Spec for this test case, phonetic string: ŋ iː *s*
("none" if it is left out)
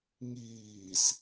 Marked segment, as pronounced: s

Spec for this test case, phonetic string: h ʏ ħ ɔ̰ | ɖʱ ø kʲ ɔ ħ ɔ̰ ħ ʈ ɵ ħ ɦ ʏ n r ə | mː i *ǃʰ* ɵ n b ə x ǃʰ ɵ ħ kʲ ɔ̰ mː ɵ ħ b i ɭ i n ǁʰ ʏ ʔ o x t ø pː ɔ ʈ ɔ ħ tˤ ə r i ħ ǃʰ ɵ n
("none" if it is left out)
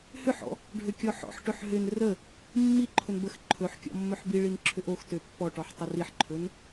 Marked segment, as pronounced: ǃʰ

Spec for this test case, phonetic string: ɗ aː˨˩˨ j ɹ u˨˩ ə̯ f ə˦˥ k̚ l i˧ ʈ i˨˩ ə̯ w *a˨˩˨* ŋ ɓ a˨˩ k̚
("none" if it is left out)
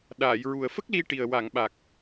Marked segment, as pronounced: a˨˩˨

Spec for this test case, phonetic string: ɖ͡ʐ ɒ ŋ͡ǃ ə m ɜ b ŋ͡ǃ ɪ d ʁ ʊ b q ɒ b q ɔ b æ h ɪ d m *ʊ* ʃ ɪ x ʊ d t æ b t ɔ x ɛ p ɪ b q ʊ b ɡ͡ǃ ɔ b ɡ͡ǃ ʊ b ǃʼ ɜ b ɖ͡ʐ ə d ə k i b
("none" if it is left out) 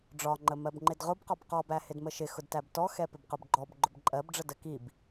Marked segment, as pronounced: ə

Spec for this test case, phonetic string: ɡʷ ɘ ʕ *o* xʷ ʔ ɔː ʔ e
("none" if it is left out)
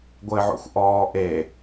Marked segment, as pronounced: o̰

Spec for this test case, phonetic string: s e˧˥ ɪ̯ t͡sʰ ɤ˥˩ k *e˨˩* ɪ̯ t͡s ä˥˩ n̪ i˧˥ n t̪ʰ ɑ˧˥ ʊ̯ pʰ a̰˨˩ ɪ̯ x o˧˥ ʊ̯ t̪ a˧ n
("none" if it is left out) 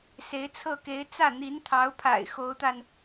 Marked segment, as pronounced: e˧˥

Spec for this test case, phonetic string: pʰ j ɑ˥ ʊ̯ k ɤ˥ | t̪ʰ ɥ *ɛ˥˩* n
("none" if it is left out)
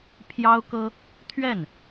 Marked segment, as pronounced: ɛ˥˩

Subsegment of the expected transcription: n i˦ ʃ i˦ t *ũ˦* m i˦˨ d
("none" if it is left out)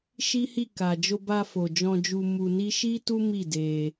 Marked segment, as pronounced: u˦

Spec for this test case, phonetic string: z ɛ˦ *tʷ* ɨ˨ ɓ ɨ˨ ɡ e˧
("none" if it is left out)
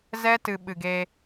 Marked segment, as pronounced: t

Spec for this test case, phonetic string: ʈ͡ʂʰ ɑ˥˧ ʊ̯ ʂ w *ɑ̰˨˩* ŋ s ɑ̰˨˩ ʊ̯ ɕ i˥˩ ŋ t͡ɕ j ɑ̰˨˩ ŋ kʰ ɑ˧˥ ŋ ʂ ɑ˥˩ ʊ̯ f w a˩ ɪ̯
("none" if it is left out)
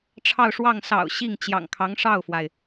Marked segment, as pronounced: ɑ˥˩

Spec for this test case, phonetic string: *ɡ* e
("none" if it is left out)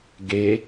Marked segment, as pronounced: ɡ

